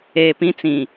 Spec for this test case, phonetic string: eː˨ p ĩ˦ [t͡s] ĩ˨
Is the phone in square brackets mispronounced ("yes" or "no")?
no